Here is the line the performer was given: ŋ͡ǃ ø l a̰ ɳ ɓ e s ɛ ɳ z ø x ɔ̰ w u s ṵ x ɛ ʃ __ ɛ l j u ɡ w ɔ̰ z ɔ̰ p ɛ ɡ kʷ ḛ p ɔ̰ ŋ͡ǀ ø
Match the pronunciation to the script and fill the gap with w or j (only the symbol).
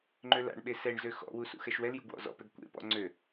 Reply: w